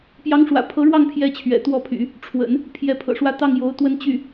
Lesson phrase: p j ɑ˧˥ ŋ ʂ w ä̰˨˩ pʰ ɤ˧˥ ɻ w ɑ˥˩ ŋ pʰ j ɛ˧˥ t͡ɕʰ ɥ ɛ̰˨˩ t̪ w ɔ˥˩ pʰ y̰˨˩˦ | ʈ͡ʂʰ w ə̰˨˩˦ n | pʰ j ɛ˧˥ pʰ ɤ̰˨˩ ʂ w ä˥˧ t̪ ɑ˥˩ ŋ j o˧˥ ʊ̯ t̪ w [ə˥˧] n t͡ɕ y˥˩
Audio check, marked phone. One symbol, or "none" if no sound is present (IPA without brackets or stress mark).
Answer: ə˥˧